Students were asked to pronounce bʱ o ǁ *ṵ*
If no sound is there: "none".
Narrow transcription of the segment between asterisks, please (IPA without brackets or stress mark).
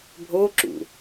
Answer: ṵ